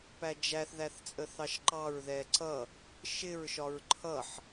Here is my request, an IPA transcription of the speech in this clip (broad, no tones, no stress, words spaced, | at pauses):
pæd͡ʒæθ ðæθt͡sʼəθɑʃǃɑɹ ðɛǀʌ | ʃɪɹ ʃɒɹǃʰʌħ